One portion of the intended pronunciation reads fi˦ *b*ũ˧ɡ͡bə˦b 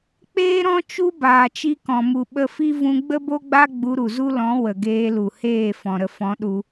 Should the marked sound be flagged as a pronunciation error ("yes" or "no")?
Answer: yes